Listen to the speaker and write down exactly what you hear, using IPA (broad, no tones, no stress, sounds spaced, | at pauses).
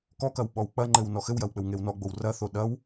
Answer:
k ɔ k ɐ w ɓ ɔ w k͡p ɐ ŋ͡ǃ ɘ w n ɔ x ɘ w j ɐ w k͡p ɘ w ŋ e w n ɔ ɡ͡b o w r ɐ θ o ɗ ɐ w